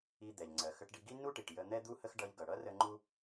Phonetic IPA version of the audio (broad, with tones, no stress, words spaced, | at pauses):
i˧ d̪ɛ˩ʎŋ͡ǀɜ˩ xə˧ʈɖi˧ɡi˥ nu˥ʈi˩ʈ jə˧ n̪ɛ˥d̪u˥hə˥x ɖʌ˧ʎɡʌ˩ɽʌ˥ rə˥ ŋ͡ǃu˥